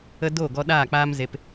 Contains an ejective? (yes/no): no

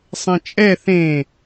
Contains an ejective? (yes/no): yes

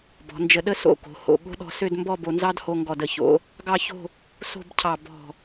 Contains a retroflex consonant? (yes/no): no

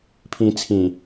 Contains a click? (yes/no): no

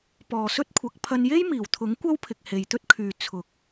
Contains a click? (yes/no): no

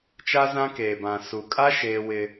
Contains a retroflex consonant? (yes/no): no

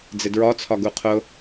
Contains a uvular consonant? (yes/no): yes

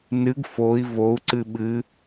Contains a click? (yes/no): yes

